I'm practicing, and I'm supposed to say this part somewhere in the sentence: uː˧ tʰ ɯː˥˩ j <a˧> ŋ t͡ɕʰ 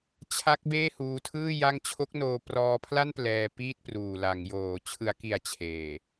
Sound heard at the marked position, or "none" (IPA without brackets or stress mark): a˥˩